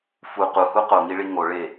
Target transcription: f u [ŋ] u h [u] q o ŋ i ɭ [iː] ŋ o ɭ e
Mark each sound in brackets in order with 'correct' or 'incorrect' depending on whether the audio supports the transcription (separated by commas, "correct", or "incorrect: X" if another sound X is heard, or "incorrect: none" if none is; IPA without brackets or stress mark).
incorrect: q, correct, incorrect: i